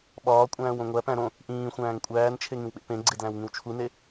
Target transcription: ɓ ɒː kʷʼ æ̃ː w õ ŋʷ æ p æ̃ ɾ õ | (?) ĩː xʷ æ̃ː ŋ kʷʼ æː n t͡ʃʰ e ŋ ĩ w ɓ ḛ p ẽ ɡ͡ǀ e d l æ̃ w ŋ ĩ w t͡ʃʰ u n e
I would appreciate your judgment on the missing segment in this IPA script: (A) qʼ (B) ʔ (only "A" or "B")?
B